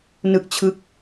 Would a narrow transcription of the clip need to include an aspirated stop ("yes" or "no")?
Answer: yes